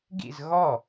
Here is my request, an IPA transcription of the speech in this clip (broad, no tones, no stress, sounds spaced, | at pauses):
ɡ ḭ z ɣ ɔ